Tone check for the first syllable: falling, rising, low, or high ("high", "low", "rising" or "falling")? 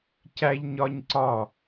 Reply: high